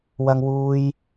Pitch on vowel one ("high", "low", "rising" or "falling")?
high